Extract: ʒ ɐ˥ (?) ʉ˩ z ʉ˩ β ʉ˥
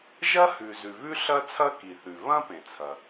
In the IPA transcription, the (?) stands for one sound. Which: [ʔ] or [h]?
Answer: h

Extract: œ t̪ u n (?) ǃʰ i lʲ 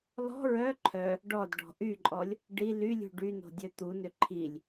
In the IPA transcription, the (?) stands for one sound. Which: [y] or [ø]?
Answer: ø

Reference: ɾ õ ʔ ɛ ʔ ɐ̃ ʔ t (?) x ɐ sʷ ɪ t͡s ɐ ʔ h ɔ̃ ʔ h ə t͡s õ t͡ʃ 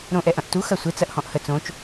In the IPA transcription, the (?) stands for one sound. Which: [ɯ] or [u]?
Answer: u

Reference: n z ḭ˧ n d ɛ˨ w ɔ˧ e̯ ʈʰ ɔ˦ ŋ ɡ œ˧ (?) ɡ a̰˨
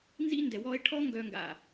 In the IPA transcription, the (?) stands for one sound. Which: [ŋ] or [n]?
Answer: ŋ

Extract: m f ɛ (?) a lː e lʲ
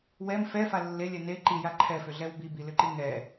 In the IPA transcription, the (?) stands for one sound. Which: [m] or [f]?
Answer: f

